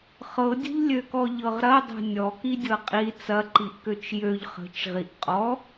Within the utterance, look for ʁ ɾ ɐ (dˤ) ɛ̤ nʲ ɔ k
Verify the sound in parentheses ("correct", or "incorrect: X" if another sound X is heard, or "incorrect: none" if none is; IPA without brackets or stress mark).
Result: correct